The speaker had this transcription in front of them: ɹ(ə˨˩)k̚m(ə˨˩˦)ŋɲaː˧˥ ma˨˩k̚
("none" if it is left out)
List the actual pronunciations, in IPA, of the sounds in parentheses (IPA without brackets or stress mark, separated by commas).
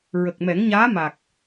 ə˨˩, ɛ˨˩˦